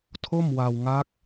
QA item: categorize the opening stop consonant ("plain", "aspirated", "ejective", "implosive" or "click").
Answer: aspirated